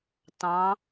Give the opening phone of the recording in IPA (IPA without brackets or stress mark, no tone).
t